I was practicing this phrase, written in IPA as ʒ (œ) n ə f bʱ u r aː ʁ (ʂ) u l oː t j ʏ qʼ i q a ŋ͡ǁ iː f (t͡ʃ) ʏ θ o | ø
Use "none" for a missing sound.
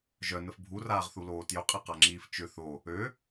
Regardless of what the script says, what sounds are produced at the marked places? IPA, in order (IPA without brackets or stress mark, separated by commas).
œ, θ, t͡ʃ